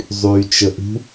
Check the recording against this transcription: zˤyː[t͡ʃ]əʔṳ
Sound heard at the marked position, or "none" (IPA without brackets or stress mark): t͡ʃ